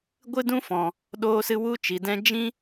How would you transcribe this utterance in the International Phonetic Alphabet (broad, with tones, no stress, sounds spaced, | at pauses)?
ɡʷ ɨ˦ d ũ˦ f ɔ̃˨ | ɗ oː˧ s ɨ˧ w u˧ t͡ʃ i˨ d ɛ̃˦ d͡ʒ ĩ˦